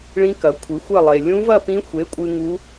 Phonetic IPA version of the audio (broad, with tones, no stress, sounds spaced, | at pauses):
ɭ ĩ˦˥ k ɐ˨˥ kʷʰ ɨ˨˥ xʷ ɐ˥˧ lˠ e˧ lʲ ũ˦˥ v ɐ˥˧ p ĩ˦˥ xʷ e˨˥ kʷʼ ɨ˧ ŋ u˦˥